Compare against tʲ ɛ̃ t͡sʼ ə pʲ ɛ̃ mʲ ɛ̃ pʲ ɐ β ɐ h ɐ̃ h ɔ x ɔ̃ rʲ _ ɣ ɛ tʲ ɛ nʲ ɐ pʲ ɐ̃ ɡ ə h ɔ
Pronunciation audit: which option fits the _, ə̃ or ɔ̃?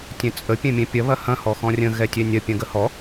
ə̃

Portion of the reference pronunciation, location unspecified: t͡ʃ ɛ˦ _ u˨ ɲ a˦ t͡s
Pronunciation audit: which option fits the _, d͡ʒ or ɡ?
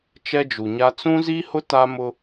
d͡ʒ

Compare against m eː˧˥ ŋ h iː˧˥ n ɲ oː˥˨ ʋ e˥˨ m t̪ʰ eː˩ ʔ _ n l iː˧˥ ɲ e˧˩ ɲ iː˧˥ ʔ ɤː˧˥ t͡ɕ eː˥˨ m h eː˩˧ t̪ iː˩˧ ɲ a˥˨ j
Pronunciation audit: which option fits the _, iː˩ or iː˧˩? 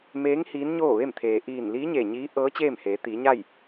iː˧˩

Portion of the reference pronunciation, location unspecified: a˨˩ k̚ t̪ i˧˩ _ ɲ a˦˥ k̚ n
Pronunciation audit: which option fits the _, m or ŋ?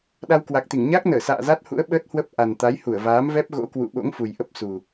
ŋ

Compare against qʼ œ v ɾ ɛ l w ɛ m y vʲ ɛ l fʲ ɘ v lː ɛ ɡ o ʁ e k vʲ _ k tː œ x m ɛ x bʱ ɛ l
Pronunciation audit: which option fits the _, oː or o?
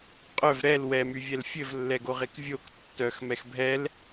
o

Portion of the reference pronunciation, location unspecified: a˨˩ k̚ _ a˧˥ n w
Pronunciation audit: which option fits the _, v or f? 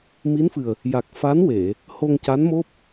f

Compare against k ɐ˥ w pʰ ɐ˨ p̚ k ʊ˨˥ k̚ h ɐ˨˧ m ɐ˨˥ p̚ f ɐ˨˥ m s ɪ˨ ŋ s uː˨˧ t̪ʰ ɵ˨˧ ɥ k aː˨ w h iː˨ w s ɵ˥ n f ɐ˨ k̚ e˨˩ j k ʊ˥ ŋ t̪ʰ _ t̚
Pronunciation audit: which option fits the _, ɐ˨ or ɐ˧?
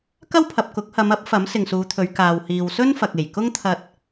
ɐ˧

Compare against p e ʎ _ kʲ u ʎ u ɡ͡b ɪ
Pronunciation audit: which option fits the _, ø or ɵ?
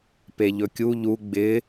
ɵ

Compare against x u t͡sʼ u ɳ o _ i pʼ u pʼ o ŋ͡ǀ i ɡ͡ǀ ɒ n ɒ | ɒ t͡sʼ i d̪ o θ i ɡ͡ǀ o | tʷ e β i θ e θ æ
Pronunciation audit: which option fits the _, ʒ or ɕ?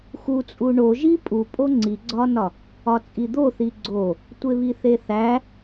ʒ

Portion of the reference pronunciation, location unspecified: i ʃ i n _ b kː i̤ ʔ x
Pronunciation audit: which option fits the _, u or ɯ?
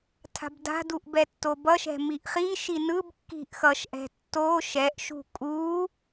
ɯ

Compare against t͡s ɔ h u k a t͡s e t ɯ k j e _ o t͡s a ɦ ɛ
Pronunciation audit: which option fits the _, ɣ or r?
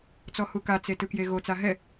ɣ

